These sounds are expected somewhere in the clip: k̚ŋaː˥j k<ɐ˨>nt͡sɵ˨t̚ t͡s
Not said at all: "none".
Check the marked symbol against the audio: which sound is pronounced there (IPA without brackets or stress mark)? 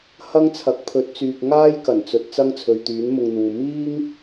ɐ˨˩